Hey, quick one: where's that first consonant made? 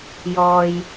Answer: palate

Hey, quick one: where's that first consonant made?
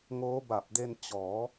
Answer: velum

